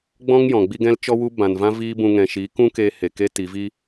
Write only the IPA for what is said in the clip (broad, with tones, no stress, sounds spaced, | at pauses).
ɡ͡b ɔ̃˦ ŋ j ɔ̃˨ ɡ͡b i˦ ɡ ɛ̃˦ l t͡ʃ ɔ˦ w u˦ b ã˨ n v ã˦ v iː˦ b ũ˧ ŋ ɛ̃˨ ʃ iː˨˦ k ũ˦ k eː˧ h e˨ k e˦ t i˨˦ v i˧